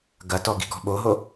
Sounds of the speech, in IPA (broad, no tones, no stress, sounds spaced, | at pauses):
ɡ ɐ t ɔ ɡ i̤ ɡ ɔ̤ ɓ o ɦ o